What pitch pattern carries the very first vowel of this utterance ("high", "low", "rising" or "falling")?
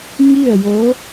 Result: falling